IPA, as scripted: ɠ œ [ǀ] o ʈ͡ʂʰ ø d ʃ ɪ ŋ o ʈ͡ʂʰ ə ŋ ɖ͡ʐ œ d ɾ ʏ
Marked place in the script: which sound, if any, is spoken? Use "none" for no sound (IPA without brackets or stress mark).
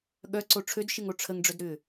ǀ